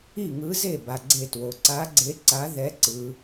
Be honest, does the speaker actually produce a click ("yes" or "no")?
yes